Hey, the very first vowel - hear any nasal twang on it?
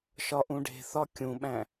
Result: no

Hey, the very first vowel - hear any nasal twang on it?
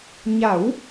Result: no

